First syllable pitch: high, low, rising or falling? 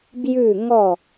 falling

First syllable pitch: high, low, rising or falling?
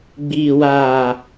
low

